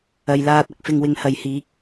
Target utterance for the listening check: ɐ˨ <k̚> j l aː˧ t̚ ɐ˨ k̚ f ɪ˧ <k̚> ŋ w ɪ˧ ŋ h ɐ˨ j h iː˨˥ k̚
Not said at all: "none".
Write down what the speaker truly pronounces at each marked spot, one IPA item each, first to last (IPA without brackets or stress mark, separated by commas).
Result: none, none